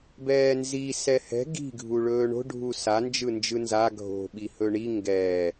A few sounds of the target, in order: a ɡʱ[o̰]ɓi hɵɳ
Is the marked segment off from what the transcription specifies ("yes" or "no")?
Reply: yes